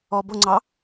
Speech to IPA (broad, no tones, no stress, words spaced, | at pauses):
ɔbʊŋ͡ǀɑ